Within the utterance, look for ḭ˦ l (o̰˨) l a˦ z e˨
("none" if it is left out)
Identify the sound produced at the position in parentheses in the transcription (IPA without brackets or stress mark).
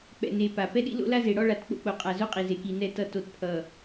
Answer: o̰˦